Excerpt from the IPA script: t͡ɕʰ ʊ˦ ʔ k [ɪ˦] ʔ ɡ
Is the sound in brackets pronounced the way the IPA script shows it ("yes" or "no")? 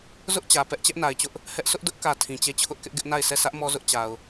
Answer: yes